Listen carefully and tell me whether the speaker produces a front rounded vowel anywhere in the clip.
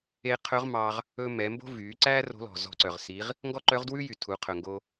yes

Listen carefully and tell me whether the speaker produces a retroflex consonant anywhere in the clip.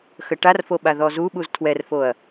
yes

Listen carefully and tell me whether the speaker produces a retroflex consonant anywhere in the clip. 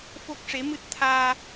yes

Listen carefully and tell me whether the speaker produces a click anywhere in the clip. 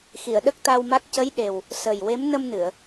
no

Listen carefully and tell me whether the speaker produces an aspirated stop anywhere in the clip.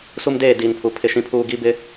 yes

